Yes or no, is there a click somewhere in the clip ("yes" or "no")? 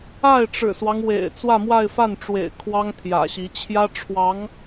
no